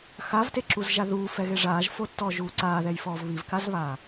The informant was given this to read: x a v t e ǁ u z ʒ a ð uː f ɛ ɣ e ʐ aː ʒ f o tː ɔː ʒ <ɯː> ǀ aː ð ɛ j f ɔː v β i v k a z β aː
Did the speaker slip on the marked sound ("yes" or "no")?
yes